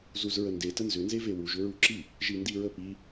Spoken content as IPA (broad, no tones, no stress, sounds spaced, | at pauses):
z u z ɹ ə n d e t ə n z ʏ n z e v e w u ʒ ʏ ɹ u ǁ i | ʒ i n d i ɹ ə p i